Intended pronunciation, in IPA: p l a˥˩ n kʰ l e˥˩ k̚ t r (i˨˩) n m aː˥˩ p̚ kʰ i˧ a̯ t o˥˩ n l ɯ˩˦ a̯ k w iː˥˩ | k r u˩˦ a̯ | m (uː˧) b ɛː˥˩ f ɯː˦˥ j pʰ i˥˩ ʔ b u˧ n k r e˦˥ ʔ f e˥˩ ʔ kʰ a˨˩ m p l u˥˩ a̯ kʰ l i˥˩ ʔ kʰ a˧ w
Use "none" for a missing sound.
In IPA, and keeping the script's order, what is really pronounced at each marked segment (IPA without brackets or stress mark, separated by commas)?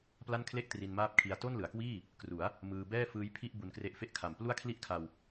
i˧, ɯː˧